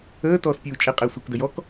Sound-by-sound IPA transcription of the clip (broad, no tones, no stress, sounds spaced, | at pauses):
əː t ɔː s pʲ uː t͡ʃʼ ɪ qʼ ɪː sʷ ɪ k d ə j ɔ k